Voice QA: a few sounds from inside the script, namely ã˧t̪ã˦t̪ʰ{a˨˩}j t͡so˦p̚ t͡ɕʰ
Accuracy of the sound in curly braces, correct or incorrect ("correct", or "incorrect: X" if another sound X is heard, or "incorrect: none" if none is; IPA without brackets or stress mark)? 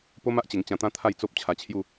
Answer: incorrect: a˥˧